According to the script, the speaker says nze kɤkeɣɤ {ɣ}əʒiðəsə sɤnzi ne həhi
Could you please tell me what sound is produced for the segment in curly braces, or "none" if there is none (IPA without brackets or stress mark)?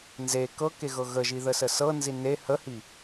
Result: ɣ